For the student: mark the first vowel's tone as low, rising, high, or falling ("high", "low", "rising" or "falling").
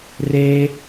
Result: high